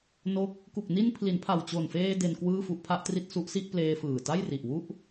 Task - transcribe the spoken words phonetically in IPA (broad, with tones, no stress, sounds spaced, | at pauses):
n o˥˩ k̚ | k u˨˩ k̚ n i˧ n pʰ l i˩˦ n pʰ a˨˩ w t͡ɕ o˨˩ n f eː˧ d e˧ n k w ɯː˥˩ f u˦˥ ʔ pʰ a˦˥ ʔ t r i˥˩ t̚ s u˦˥ ʔ s i˥˩ ʔ p l eː˧ f ɯː˨˩ t a˥˩ j r i˨˩ ʔ w u˥˩ ʔ